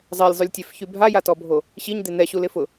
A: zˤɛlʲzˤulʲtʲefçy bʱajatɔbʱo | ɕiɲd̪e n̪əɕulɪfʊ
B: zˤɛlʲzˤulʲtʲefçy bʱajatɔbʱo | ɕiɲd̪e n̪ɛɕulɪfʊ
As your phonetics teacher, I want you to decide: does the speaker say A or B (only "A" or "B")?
B